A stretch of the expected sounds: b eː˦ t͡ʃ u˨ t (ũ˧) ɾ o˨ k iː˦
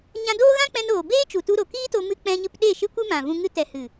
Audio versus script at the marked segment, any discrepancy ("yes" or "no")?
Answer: yes